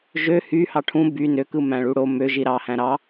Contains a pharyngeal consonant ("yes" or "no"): no